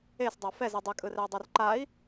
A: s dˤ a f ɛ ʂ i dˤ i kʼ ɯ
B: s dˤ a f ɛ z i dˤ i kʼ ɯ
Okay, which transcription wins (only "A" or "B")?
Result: B